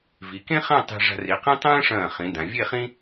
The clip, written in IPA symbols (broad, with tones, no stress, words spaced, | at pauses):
vi˩˧kẽ˥χã˥˧ tˤe̤˧ ʐa̤˧ri˩˧qĩ˥ tˤɐ̃ː˥ʂɐ̃ː˧˩χĩ˩˧ dã˩˧ vʲe˥˧χĩ˥